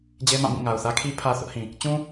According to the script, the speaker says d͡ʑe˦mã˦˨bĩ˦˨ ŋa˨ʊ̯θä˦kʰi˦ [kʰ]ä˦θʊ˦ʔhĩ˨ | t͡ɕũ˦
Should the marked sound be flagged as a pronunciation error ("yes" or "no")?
yes